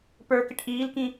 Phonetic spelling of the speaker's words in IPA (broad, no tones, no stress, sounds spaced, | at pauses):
p ə˞ k ɪ ʈ ʔ iː l k ĩ